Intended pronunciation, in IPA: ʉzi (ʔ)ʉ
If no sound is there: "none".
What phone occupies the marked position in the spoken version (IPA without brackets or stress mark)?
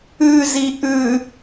ʔ